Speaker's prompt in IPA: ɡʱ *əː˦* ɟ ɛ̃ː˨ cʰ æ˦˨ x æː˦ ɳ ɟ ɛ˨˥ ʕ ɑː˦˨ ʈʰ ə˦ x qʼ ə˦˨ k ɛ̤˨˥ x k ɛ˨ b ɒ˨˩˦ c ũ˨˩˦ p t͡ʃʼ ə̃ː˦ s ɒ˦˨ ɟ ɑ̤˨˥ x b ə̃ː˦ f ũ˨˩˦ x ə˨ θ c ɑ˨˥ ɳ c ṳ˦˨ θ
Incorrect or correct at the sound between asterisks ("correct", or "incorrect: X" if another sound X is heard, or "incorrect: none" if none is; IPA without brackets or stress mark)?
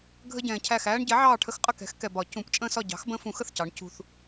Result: incorrect: ə˦